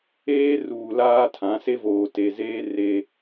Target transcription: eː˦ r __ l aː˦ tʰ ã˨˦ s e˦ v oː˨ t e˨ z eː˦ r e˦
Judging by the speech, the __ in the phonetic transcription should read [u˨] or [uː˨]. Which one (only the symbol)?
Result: uː˨